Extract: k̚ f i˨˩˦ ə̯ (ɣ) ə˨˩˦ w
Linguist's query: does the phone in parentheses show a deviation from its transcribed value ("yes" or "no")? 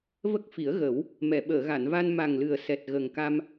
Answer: no